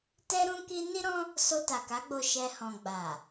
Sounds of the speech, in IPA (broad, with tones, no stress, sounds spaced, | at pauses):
t ɛ˦ ɾ ũ˦ k i˦ n i˦ ɾ ɔ̃˦ | s o˧ t a˨ k a˨˦ ɡ͡b o˧ ʃ ɛ˧ h ɔ̃˨ ɡ͡b a˨